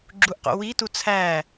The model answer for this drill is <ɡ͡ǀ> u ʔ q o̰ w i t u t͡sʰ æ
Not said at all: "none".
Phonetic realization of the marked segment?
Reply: ɡ͡ǁ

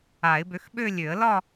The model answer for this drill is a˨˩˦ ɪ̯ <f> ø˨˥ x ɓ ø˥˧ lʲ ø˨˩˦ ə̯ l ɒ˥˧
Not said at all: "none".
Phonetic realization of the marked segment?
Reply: b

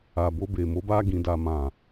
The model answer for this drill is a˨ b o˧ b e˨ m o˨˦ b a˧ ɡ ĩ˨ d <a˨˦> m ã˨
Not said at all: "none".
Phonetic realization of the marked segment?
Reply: a˨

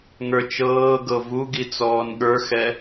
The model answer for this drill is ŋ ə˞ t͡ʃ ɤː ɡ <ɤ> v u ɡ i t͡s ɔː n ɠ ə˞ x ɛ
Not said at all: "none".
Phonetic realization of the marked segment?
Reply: ɤ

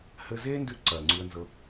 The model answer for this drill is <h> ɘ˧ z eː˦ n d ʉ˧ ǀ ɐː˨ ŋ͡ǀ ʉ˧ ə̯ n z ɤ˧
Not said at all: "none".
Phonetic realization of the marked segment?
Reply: h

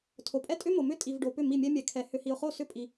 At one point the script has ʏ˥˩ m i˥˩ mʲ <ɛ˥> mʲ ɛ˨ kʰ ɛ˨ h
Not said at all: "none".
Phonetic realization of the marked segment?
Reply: ɛ˥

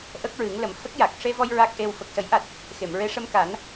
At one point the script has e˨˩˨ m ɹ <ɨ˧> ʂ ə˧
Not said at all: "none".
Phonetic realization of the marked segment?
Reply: e˧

